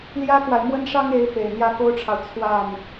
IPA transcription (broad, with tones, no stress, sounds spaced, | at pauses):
l j ä˥ k w a˨ ɪ̯ m w ə˥˩ n ʂ ɑ˥ ŋ e˧˥ ɪ̯ f e˨˩ ɪ̯ n̪ j ä˥˩ k o˥ ʊ̯ ʈ͡ʂʰ ɑ˨ ʊ̯ t͡sʰ w a˥˩ n